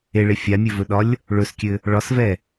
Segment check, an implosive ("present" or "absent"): present